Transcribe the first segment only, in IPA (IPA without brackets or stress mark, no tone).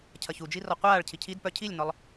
cʰ